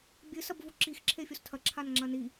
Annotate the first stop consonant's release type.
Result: plain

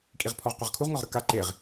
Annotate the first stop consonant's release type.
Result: ejective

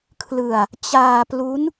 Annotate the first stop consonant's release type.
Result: aspirated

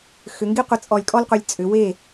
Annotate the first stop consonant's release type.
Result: plain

